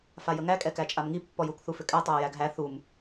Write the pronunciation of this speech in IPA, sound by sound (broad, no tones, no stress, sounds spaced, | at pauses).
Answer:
f a j ə ŋ æ kʼ ɛ k æ t͡ʃʼ a m ŋ i pː ɔ j u k θ u f ʏ kʼ æ tˤ a ə̯ j æ ɡ ɦ æ θ u m